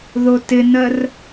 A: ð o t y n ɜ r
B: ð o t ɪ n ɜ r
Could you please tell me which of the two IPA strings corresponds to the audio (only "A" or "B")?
B